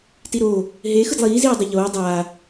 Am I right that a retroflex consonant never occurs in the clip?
yes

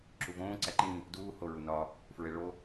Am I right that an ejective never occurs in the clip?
yes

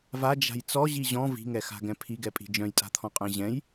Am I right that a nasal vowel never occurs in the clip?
no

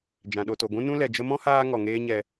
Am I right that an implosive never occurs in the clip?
no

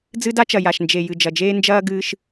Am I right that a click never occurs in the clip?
yes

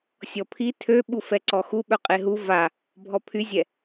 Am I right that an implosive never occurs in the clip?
no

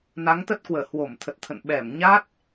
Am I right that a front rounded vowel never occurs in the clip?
yes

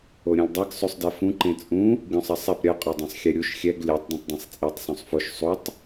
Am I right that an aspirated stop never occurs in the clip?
yes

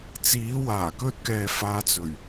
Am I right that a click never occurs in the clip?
yes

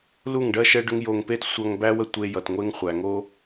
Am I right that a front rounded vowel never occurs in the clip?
no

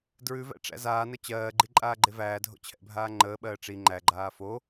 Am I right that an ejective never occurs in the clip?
no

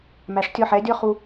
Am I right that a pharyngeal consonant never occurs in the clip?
no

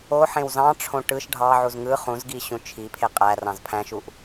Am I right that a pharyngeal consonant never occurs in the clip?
no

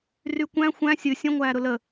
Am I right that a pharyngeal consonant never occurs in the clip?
yes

